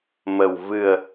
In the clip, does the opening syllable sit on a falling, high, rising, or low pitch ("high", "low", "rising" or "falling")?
low